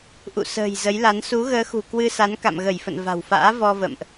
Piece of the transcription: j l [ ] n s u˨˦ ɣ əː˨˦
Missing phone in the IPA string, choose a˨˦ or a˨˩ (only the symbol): a˨˦